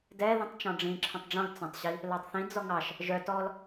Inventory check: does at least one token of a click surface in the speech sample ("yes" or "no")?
yes